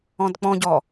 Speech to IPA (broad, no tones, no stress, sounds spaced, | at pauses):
ɔ̃ d k͡p ɔ̃ ɟ ɔ